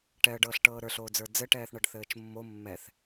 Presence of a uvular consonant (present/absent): absent